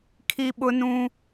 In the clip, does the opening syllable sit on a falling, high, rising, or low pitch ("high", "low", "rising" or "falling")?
high